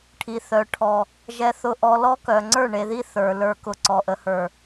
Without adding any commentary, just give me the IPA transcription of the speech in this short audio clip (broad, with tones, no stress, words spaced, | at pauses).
ʈʰi˨θœ˨ʈʰɔ˨ | ʒɛ˨θʊ˨ʔɔ˨ lɔ˦kœ˨ ŋ͡ǀə˞˦˨ɳe˨ði˦ θə˞˨ lə˞˨kʊ˨ ǀɔ˨ʔə˨hə˞˨